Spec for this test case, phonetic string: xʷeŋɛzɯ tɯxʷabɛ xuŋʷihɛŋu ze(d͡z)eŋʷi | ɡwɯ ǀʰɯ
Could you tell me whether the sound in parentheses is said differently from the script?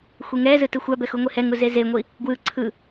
yes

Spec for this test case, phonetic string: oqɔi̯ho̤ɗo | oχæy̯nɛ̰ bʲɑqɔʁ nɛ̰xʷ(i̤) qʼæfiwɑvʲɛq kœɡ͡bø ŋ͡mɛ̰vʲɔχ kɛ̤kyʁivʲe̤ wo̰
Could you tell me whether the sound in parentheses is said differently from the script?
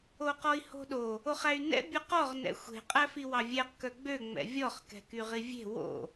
yes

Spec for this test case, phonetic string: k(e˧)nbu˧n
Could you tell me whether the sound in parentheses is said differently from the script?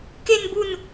no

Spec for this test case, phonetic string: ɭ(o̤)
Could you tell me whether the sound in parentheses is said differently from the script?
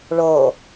yes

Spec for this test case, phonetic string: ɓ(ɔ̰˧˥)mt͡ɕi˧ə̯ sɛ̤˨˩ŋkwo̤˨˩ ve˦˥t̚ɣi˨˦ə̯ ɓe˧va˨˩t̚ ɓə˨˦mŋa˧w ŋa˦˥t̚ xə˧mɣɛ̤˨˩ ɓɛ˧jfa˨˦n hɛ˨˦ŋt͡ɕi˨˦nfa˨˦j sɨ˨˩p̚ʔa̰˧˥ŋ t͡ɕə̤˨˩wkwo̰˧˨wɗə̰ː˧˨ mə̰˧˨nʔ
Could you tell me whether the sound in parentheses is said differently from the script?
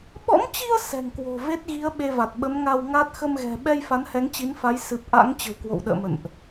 no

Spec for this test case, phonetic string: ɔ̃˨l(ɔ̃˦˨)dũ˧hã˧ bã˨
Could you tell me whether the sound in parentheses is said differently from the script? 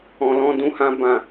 yes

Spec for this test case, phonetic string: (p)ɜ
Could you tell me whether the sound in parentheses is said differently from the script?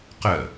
yes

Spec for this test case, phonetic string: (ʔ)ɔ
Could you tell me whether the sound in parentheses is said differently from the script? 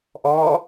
no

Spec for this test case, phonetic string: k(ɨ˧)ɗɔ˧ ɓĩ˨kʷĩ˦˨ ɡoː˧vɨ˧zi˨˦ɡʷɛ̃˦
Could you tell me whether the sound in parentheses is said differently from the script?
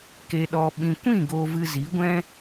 yes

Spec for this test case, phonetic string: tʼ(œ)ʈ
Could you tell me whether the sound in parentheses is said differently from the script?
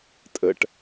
yes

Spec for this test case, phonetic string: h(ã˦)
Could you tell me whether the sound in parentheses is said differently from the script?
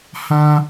no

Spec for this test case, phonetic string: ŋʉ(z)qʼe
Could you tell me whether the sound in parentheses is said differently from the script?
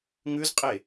no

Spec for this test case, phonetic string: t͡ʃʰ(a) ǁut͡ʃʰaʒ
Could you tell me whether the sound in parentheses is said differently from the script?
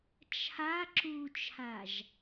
no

